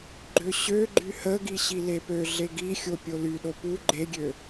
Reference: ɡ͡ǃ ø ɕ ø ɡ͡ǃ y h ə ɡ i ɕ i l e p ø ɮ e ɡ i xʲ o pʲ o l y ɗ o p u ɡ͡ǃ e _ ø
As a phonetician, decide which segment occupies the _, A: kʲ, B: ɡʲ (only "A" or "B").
B